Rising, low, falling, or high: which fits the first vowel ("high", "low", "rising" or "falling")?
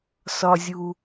low